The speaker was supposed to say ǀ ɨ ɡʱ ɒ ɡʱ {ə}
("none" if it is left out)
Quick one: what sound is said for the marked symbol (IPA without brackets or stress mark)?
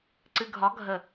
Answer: ə